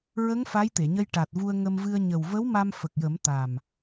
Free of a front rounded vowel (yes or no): yes